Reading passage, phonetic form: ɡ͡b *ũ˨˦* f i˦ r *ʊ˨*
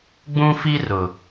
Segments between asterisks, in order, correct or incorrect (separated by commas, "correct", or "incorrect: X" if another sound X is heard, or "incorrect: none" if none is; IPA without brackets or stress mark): incorrect: ũ˦, correct